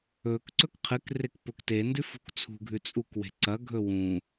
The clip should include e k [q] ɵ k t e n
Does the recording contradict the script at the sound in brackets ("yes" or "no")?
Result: yes